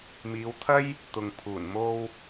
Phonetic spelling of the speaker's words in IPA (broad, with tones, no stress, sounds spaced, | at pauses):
m iː˨˧ w t̪ʰ ɐ˥ j | t̪ ʊ˨ ŋ pʰ uː˨˩ n m o˧ w